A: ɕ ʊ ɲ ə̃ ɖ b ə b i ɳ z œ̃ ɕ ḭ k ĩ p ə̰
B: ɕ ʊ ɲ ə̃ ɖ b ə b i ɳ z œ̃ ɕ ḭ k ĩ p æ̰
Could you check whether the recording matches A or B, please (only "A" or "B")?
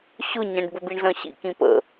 A